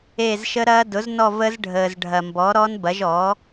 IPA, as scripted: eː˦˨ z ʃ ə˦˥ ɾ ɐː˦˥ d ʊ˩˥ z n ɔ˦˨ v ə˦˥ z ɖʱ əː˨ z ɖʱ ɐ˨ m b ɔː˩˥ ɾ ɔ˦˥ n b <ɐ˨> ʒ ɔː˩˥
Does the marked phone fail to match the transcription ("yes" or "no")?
yes